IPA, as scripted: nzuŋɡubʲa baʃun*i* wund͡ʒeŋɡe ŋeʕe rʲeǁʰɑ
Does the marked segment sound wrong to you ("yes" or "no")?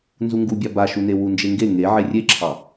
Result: yes